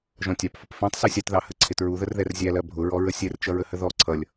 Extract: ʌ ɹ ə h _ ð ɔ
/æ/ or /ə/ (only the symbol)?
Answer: ə